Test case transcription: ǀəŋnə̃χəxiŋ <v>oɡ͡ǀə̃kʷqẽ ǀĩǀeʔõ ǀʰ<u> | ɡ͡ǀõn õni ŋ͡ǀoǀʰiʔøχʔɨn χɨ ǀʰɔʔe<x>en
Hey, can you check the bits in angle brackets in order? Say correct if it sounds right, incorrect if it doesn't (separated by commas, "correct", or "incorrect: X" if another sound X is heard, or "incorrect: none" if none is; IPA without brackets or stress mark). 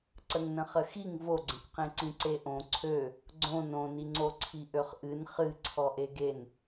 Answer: correct, incorrect: ø, incorrect: ɡ